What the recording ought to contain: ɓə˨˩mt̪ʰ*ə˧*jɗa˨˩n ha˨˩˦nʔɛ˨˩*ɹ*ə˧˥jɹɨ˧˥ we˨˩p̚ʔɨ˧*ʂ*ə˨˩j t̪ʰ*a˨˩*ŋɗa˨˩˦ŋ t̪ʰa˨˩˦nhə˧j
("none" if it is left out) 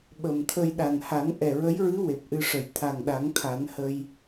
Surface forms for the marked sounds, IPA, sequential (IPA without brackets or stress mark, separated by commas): ə˧, ɹ, ʂ, a˨˩